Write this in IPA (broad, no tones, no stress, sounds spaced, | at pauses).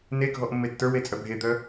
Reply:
n e ɡʱ ɔ ʔ mː e tː ə˞ w e t͡sʼ œ bʱ e d̪ œ